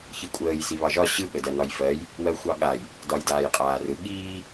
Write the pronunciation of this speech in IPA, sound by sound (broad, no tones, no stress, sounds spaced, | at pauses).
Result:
ç i kʷʼ əː j s i β ɑ ʒ ɒ ɕ ɯ ɠ ə d ɜ n ɒ j f ɜ j | w ɜ xʷ ɑ ɠ a j | d ɒ j d aː j qʼ aː r ɯ ɠ iː